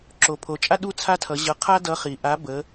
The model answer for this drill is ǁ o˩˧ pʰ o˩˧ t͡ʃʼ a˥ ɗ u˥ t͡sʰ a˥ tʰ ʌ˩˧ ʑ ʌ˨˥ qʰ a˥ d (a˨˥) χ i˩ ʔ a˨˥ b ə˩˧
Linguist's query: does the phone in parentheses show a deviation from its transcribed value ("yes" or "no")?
yes